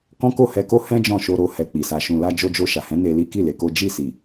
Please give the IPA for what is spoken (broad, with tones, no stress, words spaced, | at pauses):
kɔ̃˦ ko˦˨hɛ˧ko˦ hɛ̃˦ d͡ʒɔ̃˦˨ʃo˧ɾo˧ hɛ˧k͡pi˨ sa˨ʃũ˨la˧ d͡ʒo˧d͡ʒo˧ʃa˨hɛ̃˨˦ ne˧li˦ ki˦˨ le˧ko˦ d͡ʒi˦˨ si˨